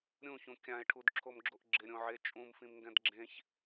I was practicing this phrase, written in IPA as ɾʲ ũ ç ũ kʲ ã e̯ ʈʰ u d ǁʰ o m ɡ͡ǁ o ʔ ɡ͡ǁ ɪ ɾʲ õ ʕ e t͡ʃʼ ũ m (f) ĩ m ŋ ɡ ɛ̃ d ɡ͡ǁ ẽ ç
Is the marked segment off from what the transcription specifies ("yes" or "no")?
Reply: no